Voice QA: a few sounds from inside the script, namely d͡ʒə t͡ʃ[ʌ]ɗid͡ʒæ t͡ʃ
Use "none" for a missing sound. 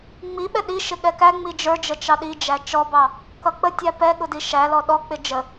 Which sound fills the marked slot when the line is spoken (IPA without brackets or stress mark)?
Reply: ɑ